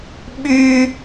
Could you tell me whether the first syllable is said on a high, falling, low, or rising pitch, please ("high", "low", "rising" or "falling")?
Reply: high